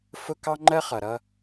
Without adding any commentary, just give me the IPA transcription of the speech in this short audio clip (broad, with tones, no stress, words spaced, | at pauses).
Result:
fʊ˦kɑ˦ŋ͡ǃɜ˦χʌ˨ ɾʌ˦